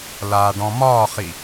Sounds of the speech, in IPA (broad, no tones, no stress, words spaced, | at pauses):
laːɖɔ̃mɒːχi